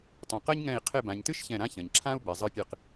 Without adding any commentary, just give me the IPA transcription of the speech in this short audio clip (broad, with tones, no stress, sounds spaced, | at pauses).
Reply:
tˤ ũ˨ q ɐ˥ ɲ ŋ ɛ̃˦˨ i̯ qʰ e˦˨ b ã˨ ɲ t ɨ˥ ʃ ç ɛ̃˦˨ ɾ ã˥ ç ɐ̃˨ ɲ ǁʰ ã˥ u̯ b ɛ˨ zˤ ɨ˦˨ pʲ ɨ˦˨ q